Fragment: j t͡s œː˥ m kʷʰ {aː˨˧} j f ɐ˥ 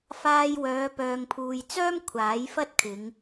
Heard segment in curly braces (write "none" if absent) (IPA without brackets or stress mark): aː˨˥